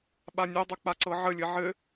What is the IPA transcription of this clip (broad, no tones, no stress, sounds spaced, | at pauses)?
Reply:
ɓ a nʲ e dˤ ø k͡p a ǀ ɤ ʕ ə lʲ ɘ ʕ ɘ